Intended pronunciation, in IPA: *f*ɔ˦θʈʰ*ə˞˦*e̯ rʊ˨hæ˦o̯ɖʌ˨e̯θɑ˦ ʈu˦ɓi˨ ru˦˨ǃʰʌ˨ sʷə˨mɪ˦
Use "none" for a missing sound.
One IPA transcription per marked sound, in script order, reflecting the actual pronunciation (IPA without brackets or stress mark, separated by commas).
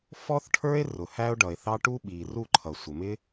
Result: f, ə˞˦